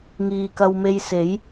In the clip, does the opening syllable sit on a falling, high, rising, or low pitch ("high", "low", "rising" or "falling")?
low